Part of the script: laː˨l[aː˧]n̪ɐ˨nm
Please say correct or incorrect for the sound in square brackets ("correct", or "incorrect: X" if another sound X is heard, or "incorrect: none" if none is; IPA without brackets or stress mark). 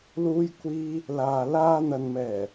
correct